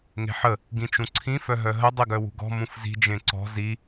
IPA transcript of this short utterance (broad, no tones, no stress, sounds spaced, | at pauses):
ŋ e̤ ħ ə | ɡ ĩ t͡ʃ ũ ǀʰ ĩ f œ ɦ œ ɦ ə dˤ i ɡ œ w ṳ ɡ ɔ̤ m ũ f z i̤ d͡ʒ ẽ ǀ ɔ̤ z i